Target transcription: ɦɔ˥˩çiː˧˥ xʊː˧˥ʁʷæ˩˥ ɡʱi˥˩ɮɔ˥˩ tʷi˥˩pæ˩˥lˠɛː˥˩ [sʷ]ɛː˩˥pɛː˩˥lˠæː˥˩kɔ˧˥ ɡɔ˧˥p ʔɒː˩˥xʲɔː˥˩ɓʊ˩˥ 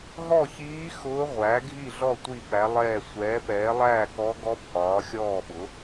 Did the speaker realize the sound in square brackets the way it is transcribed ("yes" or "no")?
yes